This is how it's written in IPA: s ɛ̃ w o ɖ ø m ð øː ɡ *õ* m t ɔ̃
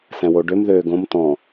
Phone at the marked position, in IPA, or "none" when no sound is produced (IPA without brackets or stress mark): õ